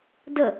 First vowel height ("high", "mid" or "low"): mid